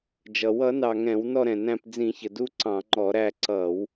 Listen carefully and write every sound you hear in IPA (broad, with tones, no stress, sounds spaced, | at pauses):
d͡ʒ ʌ˩ w ʌ˧˩˧ n ɑ˩ ŋ ɛ̃˧˩˧ w n ɔ˦˨ ɾ ɛ̃˩ n æ̃˦˨ p d͡z ĩ˧˩˧ ç ə˩ d u˦˨ ǀ ɑ̃˧˩˧ ŋ͡ǃ ɔ˧˩˧ ɾ æ˦˨ ǀ ʌ˧˩˧ w